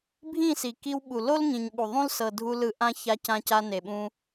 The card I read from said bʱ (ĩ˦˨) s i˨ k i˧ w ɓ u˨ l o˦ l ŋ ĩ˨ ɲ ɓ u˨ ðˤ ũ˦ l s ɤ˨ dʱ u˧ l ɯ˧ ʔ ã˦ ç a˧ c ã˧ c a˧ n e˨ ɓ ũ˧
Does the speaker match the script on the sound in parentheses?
yes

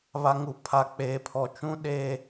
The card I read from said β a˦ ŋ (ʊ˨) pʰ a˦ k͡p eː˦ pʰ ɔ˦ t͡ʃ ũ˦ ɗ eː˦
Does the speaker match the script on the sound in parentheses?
no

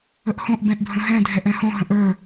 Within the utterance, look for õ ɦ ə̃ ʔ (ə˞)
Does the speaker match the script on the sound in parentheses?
yes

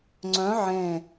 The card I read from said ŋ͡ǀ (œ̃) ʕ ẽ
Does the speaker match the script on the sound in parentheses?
yes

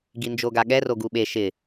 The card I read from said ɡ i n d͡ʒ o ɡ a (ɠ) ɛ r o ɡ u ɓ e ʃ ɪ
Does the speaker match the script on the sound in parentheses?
yes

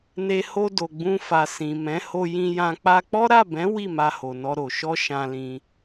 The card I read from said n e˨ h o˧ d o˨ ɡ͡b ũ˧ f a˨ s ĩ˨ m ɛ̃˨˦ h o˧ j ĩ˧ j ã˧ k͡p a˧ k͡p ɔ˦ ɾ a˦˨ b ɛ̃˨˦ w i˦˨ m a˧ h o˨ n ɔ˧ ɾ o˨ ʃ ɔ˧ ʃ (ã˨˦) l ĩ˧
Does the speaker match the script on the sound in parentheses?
no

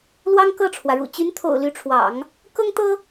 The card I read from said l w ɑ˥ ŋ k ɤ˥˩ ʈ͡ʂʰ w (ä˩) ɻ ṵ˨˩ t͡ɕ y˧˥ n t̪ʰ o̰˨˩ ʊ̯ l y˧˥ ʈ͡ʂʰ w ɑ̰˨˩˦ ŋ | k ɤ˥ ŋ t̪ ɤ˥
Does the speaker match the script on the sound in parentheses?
yes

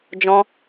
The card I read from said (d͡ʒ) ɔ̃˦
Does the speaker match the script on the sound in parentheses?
yes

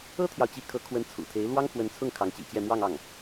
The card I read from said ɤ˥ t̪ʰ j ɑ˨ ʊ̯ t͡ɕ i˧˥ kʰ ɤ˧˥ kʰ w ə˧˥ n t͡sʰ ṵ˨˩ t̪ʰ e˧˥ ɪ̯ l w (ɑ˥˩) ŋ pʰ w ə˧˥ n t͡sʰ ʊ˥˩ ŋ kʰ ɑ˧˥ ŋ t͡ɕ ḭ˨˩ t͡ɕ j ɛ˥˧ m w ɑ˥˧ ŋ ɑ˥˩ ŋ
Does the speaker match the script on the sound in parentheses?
no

